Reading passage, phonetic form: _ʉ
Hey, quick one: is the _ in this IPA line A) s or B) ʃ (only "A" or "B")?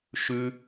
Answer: B